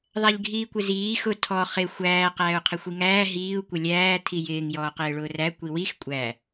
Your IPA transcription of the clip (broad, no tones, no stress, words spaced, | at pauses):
ðˤæʎɡʱiːkʷɪziː xʊ tʰɔ χɪ xʷæː qæːu̯qʰɪxʷiŋæː ɦiːu̯ kʷɪlʲæː tʰijɪːŋ jɔːqɪːɭʊːræ kʷiwix kʷʼæ